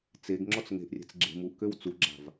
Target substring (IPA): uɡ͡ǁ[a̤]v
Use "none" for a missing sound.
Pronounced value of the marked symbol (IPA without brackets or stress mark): a̤